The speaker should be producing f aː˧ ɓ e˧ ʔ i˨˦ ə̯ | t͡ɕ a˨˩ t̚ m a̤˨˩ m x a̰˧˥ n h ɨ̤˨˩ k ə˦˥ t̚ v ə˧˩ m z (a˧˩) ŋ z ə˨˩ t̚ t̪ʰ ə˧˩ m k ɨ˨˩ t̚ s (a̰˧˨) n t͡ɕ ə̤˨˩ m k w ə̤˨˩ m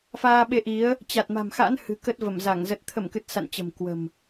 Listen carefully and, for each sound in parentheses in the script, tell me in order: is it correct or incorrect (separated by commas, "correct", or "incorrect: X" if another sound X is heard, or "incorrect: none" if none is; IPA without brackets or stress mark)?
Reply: correct, correct